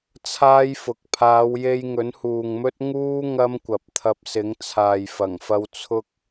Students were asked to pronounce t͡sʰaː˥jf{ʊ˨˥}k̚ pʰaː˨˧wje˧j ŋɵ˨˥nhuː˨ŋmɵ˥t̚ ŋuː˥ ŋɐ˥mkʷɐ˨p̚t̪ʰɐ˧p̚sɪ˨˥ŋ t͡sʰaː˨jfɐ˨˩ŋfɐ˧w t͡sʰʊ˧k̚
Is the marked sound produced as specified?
yes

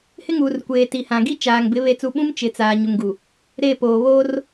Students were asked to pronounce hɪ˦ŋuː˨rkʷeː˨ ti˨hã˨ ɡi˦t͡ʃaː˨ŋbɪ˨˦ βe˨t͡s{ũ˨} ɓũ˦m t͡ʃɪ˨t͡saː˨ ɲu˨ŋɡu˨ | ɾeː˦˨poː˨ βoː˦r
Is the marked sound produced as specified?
no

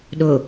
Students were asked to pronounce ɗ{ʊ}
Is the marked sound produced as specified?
yes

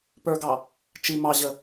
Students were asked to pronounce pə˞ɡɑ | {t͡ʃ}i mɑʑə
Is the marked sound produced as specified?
yes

